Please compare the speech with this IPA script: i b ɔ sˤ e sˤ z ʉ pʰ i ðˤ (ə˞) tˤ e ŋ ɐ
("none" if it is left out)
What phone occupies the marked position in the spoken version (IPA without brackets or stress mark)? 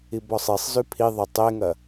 ɐ